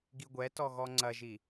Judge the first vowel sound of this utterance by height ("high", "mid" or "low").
high